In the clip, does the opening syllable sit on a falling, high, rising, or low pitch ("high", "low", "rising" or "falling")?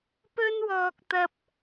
high